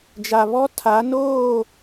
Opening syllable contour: low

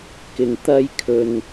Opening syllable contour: low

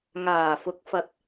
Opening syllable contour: low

